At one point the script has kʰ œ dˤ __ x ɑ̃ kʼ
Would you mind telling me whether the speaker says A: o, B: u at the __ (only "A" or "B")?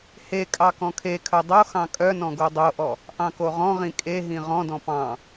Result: A